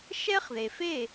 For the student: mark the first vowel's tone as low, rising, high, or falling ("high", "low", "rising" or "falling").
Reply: high